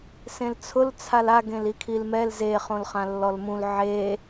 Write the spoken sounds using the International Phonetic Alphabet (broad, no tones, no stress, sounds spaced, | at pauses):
s ẽ l t͡sʰ ʊ l t͡sʰ a l a ɡ ẽ l i kʰ i l m ɛ l z e χ õ l χ ã lː ɔ l m ũ l ʕ e